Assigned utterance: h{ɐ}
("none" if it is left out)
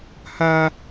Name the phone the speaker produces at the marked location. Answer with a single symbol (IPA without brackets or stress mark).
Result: a